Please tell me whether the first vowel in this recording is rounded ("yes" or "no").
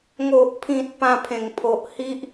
yes